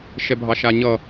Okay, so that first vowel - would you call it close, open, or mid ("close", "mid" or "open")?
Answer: mid